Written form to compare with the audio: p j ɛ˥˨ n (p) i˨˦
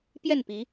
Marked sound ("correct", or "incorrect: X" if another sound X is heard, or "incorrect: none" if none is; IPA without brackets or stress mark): correct